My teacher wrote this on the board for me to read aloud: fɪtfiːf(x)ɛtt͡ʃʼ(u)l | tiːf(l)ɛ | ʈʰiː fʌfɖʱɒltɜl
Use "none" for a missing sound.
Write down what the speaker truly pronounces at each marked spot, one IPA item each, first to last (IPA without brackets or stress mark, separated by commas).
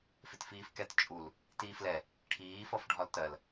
k, u, l